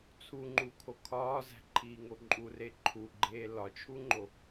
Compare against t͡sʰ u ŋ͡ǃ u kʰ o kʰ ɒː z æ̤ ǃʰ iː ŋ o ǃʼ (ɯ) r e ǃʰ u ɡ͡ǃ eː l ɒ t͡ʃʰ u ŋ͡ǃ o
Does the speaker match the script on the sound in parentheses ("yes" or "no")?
no